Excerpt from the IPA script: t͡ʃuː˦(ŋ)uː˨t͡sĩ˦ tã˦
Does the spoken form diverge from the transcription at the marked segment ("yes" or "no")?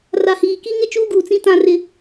yes